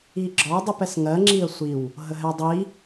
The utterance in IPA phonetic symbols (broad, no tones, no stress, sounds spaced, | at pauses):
i ɡ͡ǁ ɒ dˤ i p ɛ s ŋ ɜ ŋ͡ǁ i ə̯ sʷ i w | ɦ ə ɦ ɛ dˤ i